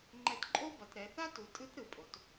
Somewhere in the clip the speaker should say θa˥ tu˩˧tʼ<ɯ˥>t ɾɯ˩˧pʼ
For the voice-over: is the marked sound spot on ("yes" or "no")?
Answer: no